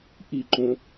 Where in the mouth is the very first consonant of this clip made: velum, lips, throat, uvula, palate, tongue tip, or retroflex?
throat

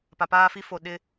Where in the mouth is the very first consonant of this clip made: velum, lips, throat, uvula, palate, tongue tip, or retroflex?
lips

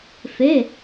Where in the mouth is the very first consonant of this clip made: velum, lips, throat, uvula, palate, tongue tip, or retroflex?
lips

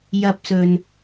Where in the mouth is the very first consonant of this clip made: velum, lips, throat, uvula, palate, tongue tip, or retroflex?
palate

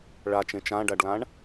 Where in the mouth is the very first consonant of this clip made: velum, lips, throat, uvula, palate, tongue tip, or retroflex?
retroflex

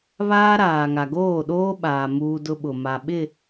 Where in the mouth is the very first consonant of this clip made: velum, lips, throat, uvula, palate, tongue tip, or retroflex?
lips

